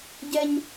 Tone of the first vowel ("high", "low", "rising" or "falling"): high